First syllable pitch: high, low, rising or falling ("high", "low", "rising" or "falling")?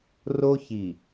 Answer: high